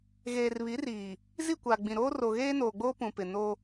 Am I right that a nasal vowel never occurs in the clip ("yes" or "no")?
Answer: no